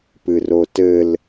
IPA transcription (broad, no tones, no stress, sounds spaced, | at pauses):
p ɨ r o t ɘ l